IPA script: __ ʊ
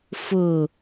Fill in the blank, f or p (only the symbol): f